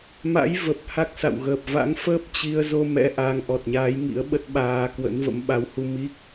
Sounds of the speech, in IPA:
m a̰˧˥ j v ə˨˩ p̚ h a˦˥ k̚ s a̰˧˨ w ɣ əː˨˩ p̚ v a̰˧˥ ŋ f əː˦˥ p̚ t͡ɕ i˧ ə̯ z o˧ m ɛ̰˧˥ ʔ a˨˦ ŋ ʔ ɔ˨˩ t̚ ɲ aː˨˦ j ŋ ḭ˧˥ ə̯ ɓ ə˦˥ t̚ ɓ aː˧ k w ə̰˧˥ n v ə̰˧˥ m ɓ a˨˦ w h u˧ m i˦˥ k̚

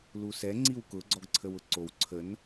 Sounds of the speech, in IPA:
l u s ɛ ŋ͡ǀ i w k ʊ ɡ͡ǀ ɔ ɡ ǀʰ ə w ʊ ǀ o w ǀʰ ə n

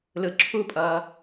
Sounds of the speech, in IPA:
l ɯ ǁʰ u pʼ ʌː

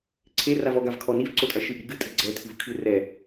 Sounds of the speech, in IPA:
ǀʰ e r a v ɔ ɡ a v kʰ ɔ n i v ǀ o tʼ ɐ ʃ ɨ ʔ i ɡ ɨ tʼ ɨ ɡ͡ǀ ɛ tʰ ɨ v kʰ ɨ r ɛ

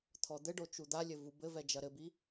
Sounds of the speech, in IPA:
t̪ʰ ɔ d̪ ɘ ɖ o t͡ʃ u d̪ a lʲ ɘ v u b ɘ v ɛ d͡ʒ ɐ ɾ ɘ b i

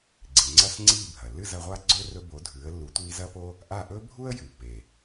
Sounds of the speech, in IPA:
ɡ͡ǀ i˩ ŋ͡ǀ ɐ˥˩ s ŋ͡ǀ iː˥˩ bʱ ɐ˩ lː ɨ˥˩ z ɐ˩˥ ʁʷ a˥ ɡ͡ǀ ɵ˥ r ɵ˧ b o˩˥ dʱ ʉː˩˥ ə̯ lː u˩˥ tʷ iː˧ z ɐ˥ p o˥ | ʔ a˥˩ ʔ ɵ˥ bʱ u˥ ə̯ j ʉ˩ pː e˩

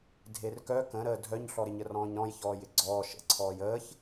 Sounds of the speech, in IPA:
dʱ e r k œ k ə̃ ɾ əː dʱ œ ɲ ɬ ɔ ɾ ɪ ɲ ə r ɔ̃ː ɲ ɾ ɔ̃ j ç ɔː j ɪ ɡ͡ǀ ɔː ʃ ə̰ ǀʰ ɔː j əː ç

